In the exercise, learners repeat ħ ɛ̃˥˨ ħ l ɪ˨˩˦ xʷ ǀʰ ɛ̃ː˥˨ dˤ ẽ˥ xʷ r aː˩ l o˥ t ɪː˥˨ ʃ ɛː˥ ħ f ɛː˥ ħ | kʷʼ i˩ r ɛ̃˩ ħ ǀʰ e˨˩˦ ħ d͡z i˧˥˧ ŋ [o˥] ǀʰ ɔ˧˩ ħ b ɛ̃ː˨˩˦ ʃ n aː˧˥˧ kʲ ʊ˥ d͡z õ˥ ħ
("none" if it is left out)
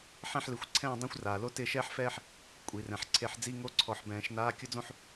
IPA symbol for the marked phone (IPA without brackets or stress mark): o˥